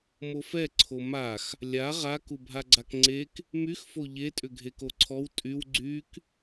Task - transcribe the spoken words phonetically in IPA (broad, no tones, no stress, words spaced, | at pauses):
mofɛǀʰo max | lʲa ʁa kubʱaɡ͡ǀakŋ͡ǀek | myxfo ʎetʼʏ ɡʱekoǀʰɔw tʼyw ɡ͡ǀyk